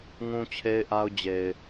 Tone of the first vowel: high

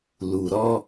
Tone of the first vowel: low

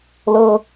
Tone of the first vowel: high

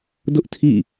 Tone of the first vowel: high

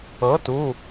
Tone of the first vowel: rising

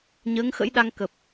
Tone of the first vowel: rising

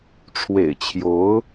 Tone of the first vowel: low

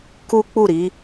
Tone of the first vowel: high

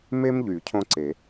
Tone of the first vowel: high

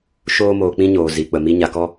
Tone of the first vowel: high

